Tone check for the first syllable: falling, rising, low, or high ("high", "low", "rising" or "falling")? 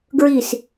falling